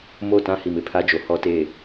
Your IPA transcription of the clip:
m o˦˨ t ã˦ h i˨ m ɪ˨ pʰ a˦ d͡ʒ o˨ h ɔ˦ t e˦˨

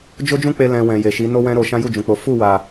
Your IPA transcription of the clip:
d͡ʒ o˦ d͡ʒ ũ˦ k͡p e˧ l ɛ̃˧ w ɛ̃˨ j e˨ ʃ i˨˦ n o˦ w ɛ̃˦ ɾ o˧ ʃ ã˦ j u˦˨ d͡ʒ ũ˨ k͡p o˨˦ f u˦˨ w a˨

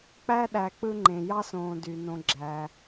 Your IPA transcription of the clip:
k͡p æ˦ ɗ æ˨ k͡p ɯ˦ ŋ͡ǃ ẽ˩ j ɑ˥ s õː˨ d y˩ n õ˨ ɡ͡ǁ æ˩

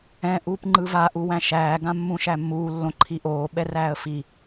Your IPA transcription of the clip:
ɛ̃ ʔ uː p ŋ͡ǃ ɯ v a ʔ u w æ̃ ʃ æː ɡ ã mː ũ ʃ æ mː uː lː õ ǃʰ i ʔ oː ɓ ɛ r æː ə̯ f i

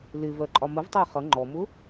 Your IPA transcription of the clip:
l ɪ v ɜ ǃʼ ɒ m ə v tˤ ɑ χ ʌ ŋ͡ǃ ɔ m ʊ

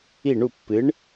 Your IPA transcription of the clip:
i˥˩ ɳ u˥˩ pː ɨ˩˥ ɳ

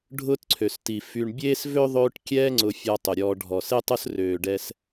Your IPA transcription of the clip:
ɖʱ ʊː˦ t ǀʰ ø˩ s t i˩ f y˨ ɳ bʲ eː˥ s v ø˥ ðˤ øː˦ ʈ kʲ ɛː˦ ŋ͡ǀ ʊ˨ fʲ ɔ˨ tˤ ʊ˩ ɾʲ ɔː˨ ɖʱ ɔ˩ s e˥ tˤ ʊ˥ s r øː˩ ɖ ɛ˨ s

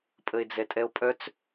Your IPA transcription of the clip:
pʼ ə e̯ d͡z ɛ tʼ ɛ o̯ pʼ œ t͡s

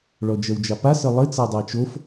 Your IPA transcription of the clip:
ɭ ɔ d͡ʒ ɜ w d͡ʒ ɑ p a s ə lˠ ɘ t͡s a dˤ a t͡ʃ o f

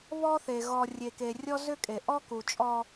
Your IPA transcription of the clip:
β ɔ˦ θ e˨ ɣ ɔ˨ rʲ e˨ k e˨ rʲ ɔ˦ z ʏ˦ kʼ e˨ ʔ ɔ˦ k u˨ t͡ʃʼ ɔ˦

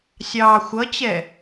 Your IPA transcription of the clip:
sʲ ɑː xʷ ʌ t͡ɕ ɛ

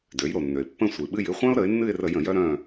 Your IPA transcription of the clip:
d ø˩˧ j ɾ o˩ nː ø˩ ɪ̯ pː ə̃˦˨ sʷ ɨ˩ ɓ ɨ˦˨ j ɨ˦˨ χʷ œ̃˦ ʊ̯ ɾ ə˩˧ ɪ̯ nː ɨ˦˨ ɪ̯ r ə˧˩˧ j ə̃˧˩˧ j œ˦ ɾ œ̃˦˨

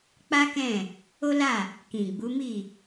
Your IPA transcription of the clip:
k͡p a˦ k ɛ̃˦˨ | o˦ l a˦˨ | k ĩ˨ ɡ͡b u˨˦ m i˦˨

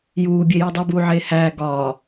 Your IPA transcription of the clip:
j uː bʲ e j i dˤ o b uː ʕ eː h æː ɡ ɒː

